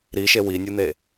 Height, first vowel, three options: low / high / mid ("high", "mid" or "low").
high